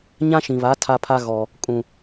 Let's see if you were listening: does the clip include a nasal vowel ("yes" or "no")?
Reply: yes